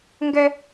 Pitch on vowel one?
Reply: high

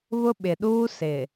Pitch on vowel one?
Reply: high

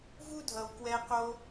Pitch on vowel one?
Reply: high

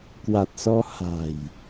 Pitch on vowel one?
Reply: low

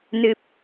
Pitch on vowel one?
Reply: low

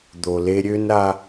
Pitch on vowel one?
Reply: low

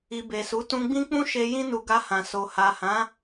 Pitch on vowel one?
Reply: low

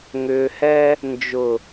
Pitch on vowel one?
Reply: low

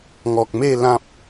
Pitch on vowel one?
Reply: low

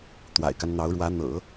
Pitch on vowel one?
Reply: low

